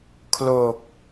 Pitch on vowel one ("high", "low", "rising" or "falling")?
low